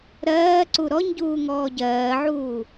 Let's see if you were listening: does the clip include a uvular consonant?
no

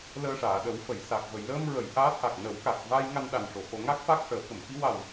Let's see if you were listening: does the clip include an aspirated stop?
no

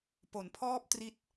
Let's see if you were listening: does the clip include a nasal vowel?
no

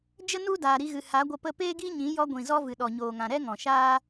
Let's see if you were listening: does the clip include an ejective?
no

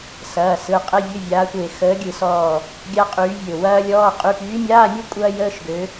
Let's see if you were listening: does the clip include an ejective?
yes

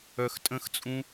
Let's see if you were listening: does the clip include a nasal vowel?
yes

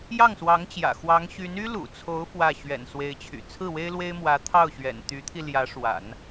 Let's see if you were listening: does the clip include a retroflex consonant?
yes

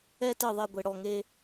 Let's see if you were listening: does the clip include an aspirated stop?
no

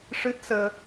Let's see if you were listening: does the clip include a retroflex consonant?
yes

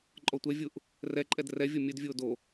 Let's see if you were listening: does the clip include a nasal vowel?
no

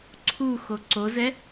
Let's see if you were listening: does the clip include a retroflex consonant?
no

